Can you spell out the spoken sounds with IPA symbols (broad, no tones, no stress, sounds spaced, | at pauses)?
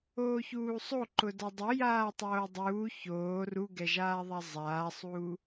oː ç uː sˤ o ǃ ʊ d a dˤ o j aː tˤ oː dˤ uː ç oː r u ɡ ɛ ʒ aː ðˤ a zˤ aː sˤ uː